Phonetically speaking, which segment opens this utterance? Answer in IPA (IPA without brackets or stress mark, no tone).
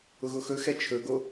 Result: ʊ